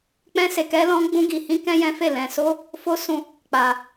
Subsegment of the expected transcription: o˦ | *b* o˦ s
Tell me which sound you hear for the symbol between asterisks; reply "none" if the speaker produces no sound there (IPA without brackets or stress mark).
f